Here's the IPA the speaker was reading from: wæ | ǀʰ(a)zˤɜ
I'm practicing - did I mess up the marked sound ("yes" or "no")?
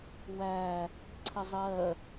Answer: yes